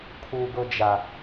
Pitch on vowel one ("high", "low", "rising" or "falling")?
high